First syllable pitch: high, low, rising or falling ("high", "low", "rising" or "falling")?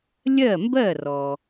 falling